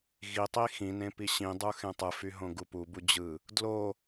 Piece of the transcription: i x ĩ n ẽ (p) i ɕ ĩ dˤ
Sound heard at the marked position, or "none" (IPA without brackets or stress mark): p